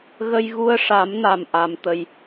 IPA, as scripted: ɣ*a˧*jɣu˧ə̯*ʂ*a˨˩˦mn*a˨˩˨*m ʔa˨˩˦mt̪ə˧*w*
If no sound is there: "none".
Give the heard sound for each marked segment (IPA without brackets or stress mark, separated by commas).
ə˧, ʂ, a˨˩, j